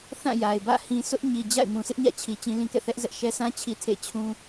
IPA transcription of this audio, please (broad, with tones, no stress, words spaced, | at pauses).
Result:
θã˦˨ja˨ɪ̯bä̰˦˨ hĩ˨ sʊ˦ʔɲi˨d͡ʑa̰˦˨ɪ̯ mũ˨sʰɪ˦ʔɲä̰˦˨t͡ɕʰi˨ t͡ɕĩ˦lĩ˦kɛ̰˦˨ θɛ˦ʔzɛ˦ʔʃɛ˦ sʰã˦ t͡ɕʰi˦tʰḛ˦˨ t͡ɕʰũ˦